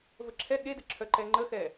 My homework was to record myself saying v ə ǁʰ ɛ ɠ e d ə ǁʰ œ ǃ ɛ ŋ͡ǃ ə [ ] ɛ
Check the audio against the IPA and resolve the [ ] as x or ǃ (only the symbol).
x